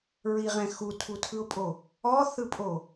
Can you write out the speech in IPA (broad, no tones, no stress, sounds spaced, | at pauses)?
ɹ i ʁ ɛ̃ x u tʰ u tʰ ɯ ʊ̯ pʼ o | ɔ θ ɯ pʼ o